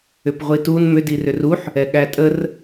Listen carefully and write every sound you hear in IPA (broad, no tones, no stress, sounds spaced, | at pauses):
ʏ p ʁʷ i t u n m ʏ d i r ʏ r u ħ | ɛ ɠ æ tʼ ə r